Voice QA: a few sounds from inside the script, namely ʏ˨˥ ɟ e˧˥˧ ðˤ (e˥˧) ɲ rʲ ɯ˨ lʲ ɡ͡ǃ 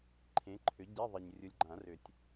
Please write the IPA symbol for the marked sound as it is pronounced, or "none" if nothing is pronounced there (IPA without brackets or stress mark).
e˨